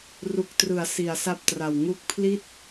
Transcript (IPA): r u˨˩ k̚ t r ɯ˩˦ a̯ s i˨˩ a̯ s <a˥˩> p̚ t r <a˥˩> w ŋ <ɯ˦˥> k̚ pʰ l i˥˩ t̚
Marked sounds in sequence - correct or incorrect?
correct, incorrect: a˨˩, incorrect: u˦˥

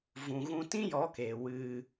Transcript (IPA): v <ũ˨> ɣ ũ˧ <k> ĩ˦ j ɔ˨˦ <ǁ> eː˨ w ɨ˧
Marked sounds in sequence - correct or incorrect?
correct, incorrect: t, incorrect: k

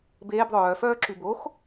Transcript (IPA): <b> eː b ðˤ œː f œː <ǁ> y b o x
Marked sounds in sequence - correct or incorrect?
correct, correct

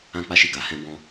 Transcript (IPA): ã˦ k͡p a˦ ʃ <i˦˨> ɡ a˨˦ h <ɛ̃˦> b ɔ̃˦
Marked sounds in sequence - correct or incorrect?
correct, correct

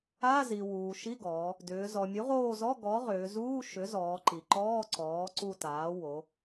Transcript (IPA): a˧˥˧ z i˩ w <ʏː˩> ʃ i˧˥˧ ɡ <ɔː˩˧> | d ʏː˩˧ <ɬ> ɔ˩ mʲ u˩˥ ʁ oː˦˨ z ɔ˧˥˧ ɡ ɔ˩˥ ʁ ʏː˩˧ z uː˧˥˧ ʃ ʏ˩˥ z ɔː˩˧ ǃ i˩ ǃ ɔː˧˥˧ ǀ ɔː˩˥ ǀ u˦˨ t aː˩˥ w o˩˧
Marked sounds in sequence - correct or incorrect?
incorrect: uː˩, correct, incorrect: z

